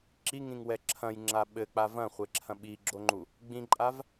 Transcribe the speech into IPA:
ǁ i ŋ ĩ ŋ w ɛ ǁʰ ɐ̃ j ŋ͡ǁ a ɓ ɘ k͡p a v ɐ̃ χʷ e ǁʰ ɐ̃ ɓ i ɡ͡ǁ o ŋ͡ǃ u | ɡ͡b ĩ ǃʼ a v

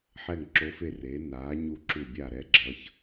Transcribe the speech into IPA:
ħ ɛ˧˩ ŋ ǁ o˨˥ f e˧˩ r eː˩˧ n aː˩˧ ɲ u˧˩ ǁ u˧˩ bʲ a˧˩ ɾ ɛ˨˥ ɡ͡ǁ ʌ˩˧ ç

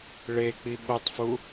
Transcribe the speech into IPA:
ɭ e k͡p i ɓ o tˤ f u

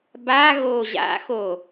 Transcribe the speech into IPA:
b a ɣ oː ʑ a̰ x o

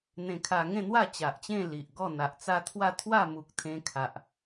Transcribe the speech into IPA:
n̪ ẽ˧ kʰ a˧ ŋ ẽ˥˧ n̪ w a˥˧ t͡ɕ a˨ ʔ t͡ɕ ẽ˥˧ l i˨ ʔ ɡ ɔ˥˧ n̪ a˨ ʔ t͡s a˦ t̪ʰ w a˥˧ t̪ʰ w a˥˧ m u˨ k̚ t̪ʰ ẽ˧ kʰ a˨ ʔ

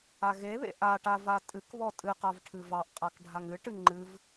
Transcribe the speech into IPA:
a ɣ e β ḛ ʔ a ʈ a v a tʼ ɨ k β ɔ tʼ ɨ q a v ʈʰ ɨ v ɑ ʔ qʼ a k ɖʱ a ŋ ɨ ʈ ɨ ŋ͡ǃ ɨ v

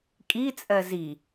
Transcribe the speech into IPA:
kʼ i t͡sʼ ɜ z i

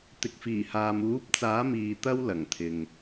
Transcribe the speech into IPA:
t̪ ɪ˨ k̚ f iː˨˩ h aː˨ m uː˨˥ p̚ t͡s aː˨˥ m iː˨ t̪ ɐ˥ w l ɐ˨˩ ŋ t̪ʰ ɪ˨ ŋ

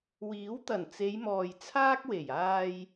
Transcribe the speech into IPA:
w iː˨˥ w t̪ ɐ˨˩ n t͡s e˨˧ j m ɔː˨ j t͡sʰ aː˥ k̚ w e˨˩ j aː˨ j

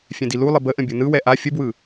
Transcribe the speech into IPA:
fʲ ɛ̃ d i l u lˠ ə b ə ʔ ə̃ bʲ u n ɯ w ɛ ʔ a fʲ ə b w ɯ

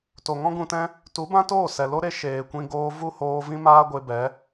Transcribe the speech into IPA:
t o˨ ŋ ɔ̃˦ ɡ ũ˧ t ɛ̃˦ | t u˨˦ b ã˦ t oː˦˨ s ɛ˨ l o˦ ɾ e˧ ʃ eː˨ kʷ ĩ˧ ɡ oː˧ v u˦ h oː˧ v ĩ˦ m aː˦ ɡʷ e˧ b ɛ˨˦

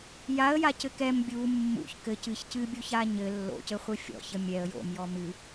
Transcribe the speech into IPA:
j a ə̯ j a c ɘ k ɛ m bʲ u mː ṵ ç k ɘ c ɨ ç c ɨ bʲ u ç a ɲ ɘ lː o̰ c ɘ χʷ ɨ fʲ ɔ̰ ç ə mʲ ɛ ə̯ j o̰ m j ɔ m ɨ

